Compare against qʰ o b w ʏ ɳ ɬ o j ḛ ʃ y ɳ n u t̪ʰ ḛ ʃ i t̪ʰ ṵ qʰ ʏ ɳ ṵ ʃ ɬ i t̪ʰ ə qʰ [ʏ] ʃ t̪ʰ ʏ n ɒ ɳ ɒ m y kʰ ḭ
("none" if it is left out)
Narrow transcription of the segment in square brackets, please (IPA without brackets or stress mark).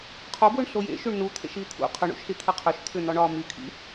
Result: ʏ